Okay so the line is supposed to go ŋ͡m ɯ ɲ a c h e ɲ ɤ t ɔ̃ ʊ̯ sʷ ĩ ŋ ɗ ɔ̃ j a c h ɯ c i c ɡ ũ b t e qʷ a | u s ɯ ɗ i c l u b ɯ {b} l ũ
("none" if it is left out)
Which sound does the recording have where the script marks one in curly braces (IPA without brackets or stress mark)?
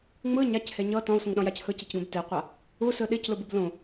b